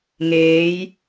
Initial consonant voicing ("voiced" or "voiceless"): voiced